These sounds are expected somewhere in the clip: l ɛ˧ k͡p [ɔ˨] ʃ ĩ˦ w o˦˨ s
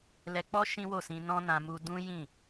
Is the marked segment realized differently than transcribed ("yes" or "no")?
yes